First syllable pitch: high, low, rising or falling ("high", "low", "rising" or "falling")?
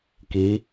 rising